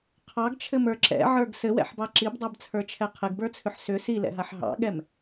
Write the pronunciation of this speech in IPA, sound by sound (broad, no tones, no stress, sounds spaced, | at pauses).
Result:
qʰ ɑ ɡ t͡ʃʰ ɘ m ə˞ ǁ ɛ̰ ʕ ə˞ ɡ s ɘ w ɛ̰ ħ b ɑ ǁ i b dˤ ɛ b t͡sʰ ə˞ t͡ʃʰ ɛ qʰ ɘ ɡ b ə˞ t͡sʰ ʏ ħ s ʏ s i l ɛ̰ ɦ a ħ ɦ ɑ̰ ɠ ɛ m